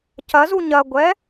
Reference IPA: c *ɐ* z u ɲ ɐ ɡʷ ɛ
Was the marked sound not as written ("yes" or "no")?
no